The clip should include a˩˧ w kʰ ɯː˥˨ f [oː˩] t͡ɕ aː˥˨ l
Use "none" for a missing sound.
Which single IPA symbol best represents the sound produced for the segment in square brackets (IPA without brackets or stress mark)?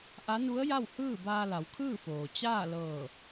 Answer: oː˩